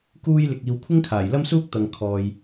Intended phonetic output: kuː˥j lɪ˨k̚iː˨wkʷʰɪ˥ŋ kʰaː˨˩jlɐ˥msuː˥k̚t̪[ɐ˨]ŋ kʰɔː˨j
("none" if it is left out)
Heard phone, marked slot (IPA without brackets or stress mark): ɐ˨